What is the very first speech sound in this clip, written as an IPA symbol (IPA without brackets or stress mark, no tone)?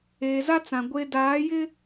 eː